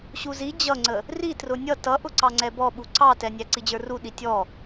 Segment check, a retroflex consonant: absent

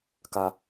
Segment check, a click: absent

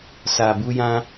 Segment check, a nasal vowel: present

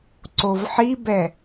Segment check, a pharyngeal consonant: present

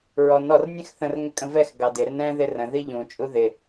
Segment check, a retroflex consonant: absent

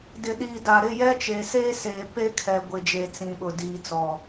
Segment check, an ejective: absent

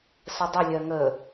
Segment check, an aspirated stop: absent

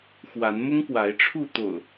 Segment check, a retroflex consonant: present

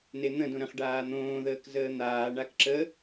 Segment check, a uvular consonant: present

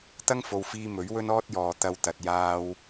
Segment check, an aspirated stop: absent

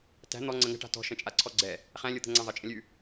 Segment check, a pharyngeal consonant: absent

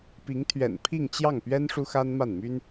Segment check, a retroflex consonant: present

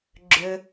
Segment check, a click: present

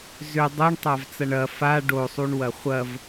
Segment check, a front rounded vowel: present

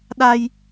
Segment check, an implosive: present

